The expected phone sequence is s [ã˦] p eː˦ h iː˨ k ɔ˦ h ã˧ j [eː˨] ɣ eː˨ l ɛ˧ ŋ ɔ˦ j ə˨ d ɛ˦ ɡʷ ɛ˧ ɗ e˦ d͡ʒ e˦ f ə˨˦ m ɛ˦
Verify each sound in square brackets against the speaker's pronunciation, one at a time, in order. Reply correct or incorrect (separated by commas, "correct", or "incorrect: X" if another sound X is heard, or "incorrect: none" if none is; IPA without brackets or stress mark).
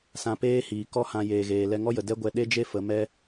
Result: incorrect: ã˧, correct